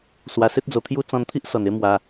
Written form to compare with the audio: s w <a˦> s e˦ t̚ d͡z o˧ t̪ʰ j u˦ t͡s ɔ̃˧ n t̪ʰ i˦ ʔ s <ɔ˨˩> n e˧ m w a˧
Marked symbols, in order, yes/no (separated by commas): no, yes